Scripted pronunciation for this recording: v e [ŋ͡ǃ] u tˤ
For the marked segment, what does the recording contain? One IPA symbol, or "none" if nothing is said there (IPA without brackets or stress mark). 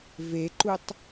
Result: ǃ